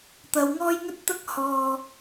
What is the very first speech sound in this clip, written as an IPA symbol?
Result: t̪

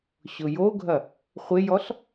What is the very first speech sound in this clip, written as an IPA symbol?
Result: ɕ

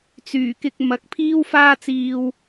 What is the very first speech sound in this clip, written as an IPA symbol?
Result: t͡s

